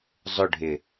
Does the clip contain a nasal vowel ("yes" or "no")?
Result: no